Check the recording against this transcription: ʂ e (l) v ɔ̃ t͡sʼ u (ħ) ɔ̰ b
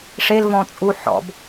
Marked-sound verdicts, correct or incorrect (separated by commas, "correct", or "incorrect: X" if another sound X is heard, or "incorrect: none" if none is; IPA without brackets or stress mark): correct, correct